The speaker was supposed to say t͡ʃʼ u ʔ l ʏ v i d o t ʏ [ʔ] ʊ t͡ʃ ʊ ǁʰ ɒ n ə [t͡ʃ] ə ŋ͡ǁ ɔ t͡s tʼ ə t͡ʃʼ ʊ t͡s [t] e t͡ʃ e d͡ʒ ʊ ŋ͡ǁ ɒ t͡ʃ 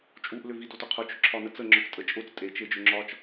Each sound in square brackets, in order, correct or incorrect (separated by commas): incorrect, incorrect, incorrect